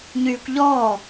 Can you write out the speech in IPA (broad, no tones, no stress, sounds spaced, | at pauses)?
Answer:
ɲ yː kʷ ʎ ɔː